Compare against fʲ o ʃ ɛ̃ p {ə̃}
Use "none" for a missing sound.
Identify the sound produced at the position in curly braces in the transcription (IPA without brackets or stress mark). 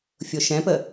ə